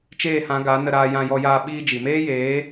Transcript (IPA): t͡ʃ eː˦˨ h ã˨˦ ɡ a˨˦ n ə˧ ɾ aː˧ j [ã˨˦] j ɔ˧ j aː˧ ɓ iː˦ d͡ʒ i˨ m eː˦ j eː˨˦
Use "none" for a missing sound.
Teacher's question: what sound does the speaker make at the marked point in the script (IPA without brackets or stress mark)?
ã˧